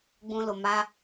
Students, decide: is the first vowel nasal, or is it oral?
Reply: nasal